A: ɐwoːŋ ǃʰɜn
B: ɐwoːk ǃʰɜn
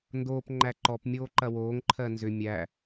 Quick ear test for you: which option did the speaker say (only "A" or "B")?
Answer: A